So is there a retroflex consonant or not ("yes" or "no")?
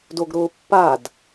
no